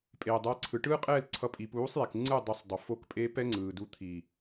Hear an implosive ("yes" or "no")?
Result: no